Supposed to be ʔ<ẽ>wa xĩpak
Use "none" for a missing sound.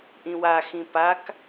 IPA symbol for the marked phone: ĩ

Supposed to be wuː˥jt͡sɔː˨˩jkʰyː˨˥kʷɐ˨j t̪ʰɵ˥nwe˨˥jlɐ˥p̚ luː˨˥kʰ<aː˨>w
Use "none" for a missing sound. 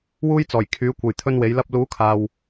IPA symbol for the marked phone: aː˨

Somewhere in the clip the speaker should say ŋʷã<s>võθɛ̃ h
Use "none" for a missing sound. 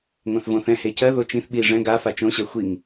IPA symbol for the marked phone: θ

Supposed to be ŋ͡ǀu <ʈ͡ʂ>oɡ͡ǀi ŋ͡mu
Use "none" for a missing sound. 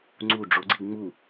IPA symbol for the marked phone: ɖ͡ʐ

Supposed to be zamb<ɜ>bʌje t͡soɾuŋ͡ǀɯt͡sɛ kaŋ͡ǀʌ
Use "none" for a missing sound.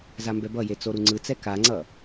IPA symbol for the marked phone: ɛ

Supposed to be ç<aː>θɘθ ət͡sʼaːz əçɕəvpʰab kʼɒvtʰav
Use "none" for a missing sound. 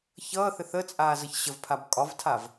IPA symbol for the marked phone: ʌː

